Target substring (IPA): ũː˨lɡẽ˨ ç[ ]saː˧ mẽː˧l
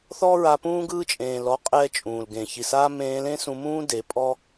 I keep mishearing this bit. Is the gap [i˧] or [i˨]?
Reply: i˨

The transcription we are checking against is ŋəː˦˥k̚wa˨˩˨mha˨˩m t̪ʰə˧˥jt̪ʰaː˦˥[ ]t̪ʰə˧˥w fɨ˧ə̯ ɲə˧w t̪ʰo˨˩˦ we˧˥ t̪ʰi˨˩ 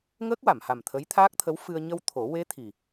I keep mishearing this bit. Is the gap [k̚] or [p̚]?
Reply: k̚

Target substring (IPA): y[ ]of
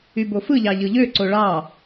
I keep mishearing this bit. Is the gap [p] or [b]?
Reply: b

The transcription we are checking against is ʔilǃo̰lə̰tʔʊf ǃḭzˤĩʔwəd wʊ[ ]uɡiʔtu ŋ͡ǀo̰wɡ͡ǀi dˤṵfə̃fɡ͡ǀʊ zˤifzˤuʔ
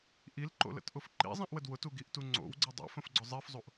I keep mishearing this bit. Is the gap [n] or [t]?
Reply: t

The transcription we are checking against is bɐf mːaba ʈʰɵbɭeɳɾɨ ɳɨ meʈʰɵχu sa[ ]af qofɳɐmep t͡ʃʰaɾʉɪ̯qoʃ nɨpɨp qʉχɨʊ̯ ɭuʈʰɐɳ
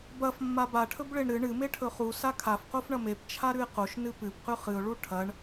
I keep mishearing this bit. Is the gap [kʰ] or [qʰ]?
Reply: kʰ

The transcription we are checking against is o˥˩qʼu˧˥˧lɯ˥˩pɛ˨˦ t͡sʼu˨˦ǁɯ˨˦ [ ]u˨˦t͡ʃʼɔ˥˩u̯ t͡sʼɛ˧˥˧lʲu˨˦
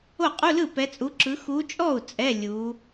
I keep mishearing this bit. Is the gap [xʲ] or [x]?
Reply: x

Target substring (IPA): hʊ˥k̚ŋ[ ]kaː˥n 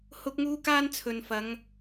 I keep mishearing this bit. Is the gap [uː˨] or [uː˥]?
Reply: uː˥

